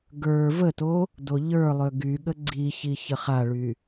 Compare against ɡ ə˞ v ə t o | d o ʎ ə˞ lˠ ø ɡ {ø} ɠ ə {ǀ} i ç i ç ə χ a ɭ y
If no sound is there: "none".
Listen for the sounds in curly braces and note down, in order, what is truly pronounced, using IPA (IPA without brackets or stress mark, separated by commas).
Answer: y, ɡ͡ǀ